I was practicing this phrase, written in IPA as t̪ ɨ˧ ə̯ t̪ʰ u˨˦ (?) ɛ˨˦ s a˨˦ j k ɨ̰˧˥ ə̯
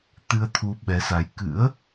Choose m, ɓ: ɓ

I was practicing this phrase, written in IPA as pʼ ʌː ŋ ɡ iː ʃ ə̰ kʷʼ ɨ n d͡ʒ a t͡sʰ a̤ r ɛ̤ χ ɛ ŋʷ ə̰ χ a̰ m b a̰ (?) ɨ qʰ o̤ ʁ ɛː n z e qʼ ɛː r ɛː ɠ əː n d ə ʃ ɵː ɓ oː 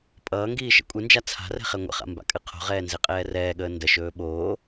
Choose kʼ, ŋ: kʼ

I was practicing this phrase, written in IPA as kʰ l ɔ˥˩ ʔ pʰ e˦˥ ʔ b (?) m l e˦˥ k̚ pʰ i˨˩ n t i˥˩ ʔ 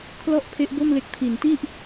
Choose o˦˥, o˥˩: o˥˩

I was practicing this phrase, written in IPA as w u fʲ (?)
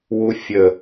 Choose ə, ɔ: ə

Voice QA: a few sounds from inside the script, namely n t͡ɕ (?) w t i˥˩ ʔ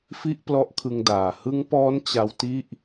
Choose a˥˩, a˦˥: a˦˥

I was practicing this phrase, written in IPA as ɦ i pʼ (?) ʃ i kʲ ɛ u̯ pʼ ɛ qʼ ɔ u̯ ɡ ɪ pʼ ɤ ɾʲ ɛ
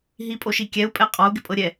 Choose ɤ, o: o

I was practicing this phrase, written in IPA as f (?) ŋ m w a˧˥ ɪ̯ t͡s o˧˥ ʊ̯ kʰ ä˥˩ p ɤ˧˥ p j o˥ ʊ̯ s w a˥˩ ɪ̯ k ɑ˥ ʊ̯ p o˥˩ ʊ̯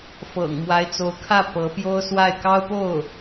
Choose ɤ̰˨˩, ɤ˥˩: ɤ̰˨˩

